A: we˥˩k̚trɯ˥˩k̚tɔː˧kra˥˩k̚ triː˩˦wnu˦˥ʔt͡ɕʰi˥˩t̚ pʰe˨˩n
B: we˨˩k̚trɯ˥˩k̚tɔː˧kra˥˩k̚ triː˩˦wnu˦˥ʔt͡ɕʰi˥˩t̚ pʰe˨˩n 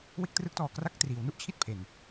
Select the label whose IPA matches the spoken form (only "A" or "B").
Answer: A